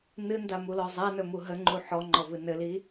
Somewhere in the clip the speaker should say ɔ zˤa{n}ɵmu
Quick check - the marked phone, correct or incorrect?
correct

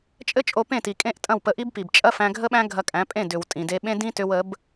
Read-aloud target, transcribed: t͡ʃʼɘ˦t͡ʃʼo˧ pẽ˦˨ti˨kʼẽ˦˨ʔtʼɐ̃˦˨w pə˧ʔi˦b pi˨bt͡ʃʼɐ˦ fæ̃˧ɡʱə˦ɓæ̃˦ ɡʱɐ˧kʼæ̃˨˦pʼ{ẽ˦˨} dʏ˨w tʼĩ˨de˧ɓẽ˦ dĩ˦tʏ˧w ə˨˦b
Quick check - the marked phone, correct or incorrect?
correct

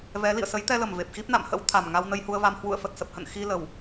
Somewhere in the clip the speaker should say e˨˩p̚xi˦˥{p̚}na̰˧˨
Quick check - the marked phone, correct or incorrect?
correct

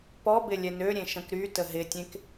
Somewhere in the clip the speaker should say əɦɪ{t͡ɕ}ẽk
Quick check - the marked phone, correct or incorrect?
incorrect: tʲ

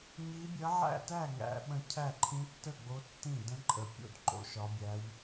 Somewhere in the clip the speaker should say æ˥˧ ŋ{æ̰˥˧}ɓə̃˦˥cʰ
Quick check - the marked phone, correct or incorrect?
incorrect: æ̰˦˥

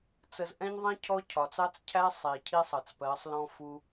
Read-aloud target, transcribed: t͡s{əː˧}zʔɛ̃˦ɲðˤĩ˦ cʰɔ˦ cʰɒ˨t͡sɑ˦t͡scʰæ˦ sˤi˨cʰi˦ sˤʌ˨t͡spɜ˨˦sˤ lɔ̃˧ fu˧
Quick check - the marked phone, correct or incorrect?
incorrect: ə˧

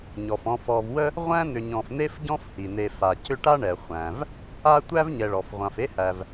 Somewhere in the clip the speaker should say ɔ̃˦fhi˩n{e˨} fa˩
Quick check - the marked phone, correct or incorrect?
correct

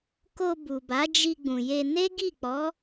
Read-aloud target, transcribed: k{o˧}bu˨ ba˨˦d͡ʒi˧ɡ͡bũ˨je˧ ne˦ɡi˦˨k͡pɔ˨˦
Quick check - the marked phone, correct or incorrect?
correct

